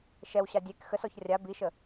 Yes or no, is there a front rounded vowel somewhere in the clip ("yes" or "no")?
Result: no